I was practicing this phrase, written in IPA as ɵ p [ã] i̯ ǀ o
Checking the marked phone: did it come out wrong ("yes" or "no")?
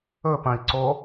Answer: yes